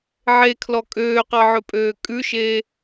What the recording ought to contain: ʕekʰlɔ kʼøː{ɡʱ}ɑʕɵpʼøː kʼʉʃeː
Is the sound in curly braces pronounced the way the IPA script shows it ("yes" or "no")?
no